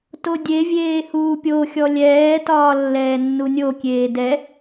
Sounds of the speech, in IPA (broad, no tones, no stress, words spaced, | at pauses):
todʲevʲeː huːpʲoxʲɔ lʲɛːtɒː lːɛːnːunʲokʲeː dɛ